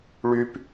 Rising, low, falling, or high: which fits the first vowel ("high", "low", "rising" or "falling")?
high